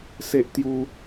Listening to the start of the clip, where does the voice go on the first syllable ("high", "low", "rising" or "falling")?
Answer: high